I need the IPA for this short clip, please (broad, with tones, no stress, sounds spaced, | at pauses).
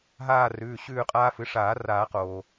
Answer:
ɦ aː˦˨ r ʉː˩˧˩ ɕ ʉː˦˨ qʼ aː˦ f ɨ˩˥ ʂ aː˨˩˦ r aː˨˩˦ q oː˩